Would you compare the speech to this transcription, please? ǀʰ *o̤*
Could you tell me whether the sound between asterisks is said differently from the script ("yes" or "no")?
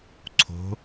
no